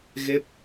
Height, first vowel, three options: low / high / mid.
mid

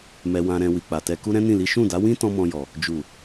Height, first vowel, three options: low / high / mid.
mid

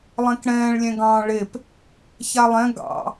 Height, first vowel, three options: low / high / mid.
mid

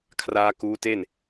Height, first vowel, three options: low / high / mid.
low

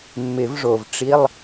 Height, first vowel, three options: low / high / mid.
high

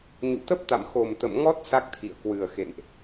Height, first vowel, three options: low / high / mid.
high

